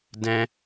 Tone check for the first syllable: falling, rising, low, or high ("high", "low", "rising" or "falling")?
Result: high